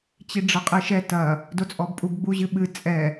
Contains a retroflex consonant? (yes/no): yes